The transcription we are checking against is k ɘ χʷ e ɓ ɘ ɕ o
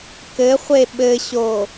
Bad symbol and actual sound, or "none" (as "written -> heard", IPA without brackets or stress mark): none